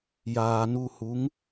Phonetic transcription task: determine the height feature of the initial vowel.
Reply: low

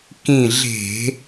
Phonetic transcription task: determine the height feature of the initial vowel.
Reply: high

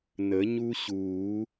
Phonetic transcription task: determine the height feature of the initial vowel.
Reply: mid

